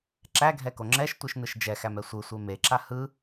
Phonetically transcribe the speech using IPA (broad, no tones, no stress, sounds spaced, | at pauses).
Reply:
ǁ æ ɡʱ ɛ k o ŋ͡ǁ ɛ ʃ tʷ ɯ ʃ n ɯ ʃ d͡ʒ ɛ x æ m ɛ sʷ ɯ sʷ e m e ǁ a h ɯ